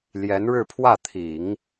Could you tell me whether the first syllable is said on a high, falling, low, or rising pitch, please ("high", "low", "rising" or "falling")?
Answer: rising